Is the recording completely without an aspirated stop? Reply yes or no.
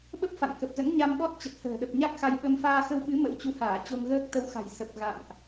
yes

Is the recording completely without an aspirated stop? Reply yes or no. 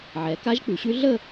yes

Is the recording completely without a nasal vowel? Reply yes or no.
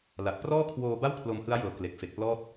yes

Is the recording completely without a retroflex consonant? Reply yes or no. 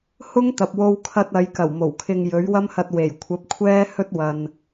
yes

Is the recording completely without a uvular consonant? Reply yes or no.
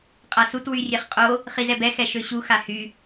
no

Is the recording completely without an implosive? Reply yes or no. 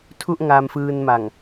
yes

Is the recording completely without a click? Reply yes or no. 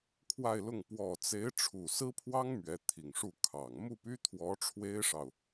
yes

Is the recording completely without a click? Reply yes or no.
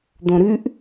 yes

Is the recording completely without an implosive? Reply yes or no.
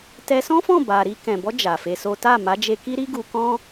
yes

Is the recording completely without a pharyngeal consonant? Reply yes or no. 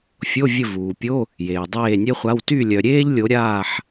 no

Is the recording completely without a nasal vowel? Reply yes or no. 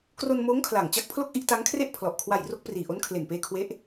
yes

